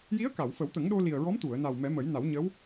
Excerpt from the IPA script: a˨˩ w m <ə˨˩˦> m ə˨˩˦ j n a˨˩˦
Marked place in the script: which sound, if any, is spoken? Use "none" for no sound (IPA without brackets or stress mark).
ɛ˨˩˦